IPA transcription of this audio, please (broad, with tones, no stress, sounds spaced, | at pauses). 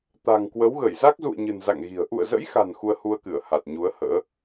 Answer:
t̪ a̤˨˩ ŋ k w ə˨˦ w ɣ ə˧˩ j z a˦˥ k̚ z ṵ˧˨ ə̯ ɲ ɨ̤˨˩ n z a̰˧˨ ŋ ɣ i̤˨˩ ə̯ ʔ ṵ˧˨ ə̯ z ə̰˧˥ j x a̤˨˩ n x u˧ ə̯ h u˧ ə̯ k ɨ˧˩ ə̯ h a˨˩ t̚ ɲ u˨˦ ə̯ h ə̰ː˧˥